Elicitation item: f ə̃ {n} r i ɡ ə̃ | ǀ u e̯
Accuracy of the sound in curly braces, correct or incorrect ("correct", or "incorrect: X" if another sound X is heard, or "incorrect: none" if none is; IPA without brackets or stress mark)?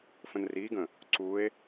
correct